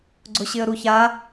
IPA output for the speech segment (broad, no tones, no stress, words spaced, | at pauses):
ɡ͡ǀʊɕɪə̯ɾuça